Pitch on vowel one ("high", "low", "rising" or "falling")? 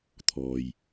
low